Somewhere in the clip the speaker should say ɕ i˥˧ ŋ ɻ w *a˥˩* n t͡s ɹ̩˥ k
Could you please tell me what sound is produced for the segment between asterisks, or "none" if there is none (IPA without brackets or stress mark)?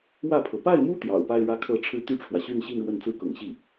ə˥˩